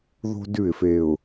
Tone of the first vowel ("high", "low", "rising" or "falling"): high